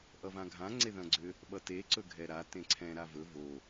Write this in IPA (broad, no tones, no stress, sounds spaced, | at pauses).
ʔ ʌ v ã ɡʱ ã ŋ͡ǀ e ð ɐ̃ ɡ͡ǀ ʏ | ɓ ʌ t e ǀ ɵ ɡʱ ɛ ɾ a t ẽ ǀʰ ɛ̃ ɾ a v ɵ v o